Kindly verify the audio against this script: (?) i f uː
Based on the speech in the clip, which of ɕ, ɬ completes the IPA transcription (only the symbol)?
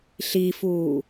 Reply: ɬ